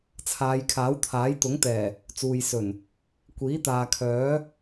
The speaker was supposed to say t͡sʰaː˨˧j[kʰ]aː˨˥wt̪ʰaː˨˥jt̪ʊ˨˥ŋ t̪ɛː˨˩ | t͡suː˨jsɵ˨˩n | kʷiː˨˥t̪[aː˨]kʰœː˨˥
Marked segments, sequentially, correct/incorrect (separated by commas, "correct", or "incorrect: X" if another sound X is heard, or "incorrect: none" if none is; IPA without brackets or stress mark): correct, correct